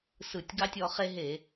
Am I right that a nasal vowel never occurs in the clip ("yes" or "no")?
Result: yes